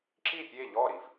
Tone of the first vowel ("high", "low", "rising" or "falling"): falling